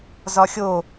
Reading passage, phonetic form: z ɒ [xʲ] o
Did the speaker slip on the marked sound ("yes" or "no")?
no